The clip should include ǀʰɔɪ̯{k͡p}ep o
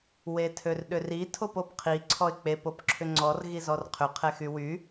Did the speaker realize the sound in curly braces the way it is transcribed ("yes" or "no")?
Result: yes